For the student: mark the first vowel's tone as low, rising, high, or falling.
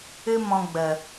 high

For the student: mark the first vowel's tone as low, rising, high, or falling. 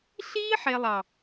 high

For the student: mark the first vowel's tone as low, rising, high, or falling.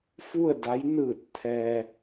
falling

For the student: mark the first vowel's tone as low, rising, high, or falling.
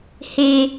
low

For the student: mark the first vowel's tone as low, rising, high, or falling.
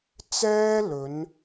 high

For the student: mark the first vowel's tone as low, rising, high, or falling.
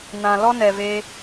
low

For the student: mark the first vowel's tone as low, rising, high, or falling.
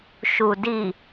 low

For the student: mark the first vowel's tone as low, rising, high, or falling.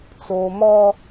low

